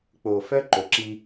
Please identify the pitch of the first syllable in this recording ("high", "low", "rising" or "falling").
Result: low